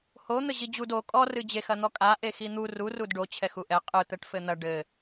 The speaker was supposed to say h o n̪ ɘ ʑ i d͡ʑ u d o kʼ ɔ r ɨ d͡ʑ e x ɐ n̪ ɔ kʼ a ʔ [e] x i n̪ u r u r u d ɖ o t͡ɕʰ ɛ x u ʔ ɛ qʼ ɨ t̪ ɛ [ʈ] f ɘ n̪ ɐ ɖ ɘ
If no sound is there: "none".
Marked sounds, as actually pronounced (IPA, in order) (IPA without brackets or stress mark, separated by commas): e, ʈ